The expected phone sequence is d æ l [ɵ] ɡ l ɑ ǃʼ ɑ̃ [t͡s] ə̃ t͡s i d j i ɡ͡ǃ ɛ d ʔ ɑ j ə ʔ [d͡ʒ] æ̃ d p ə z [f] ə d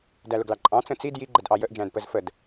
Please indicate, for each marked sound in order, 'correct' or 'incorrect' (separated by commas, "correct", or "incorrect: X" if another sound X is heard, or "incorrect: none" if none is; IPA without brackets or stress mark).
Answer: incorrect: ʊ, correct, correct, correct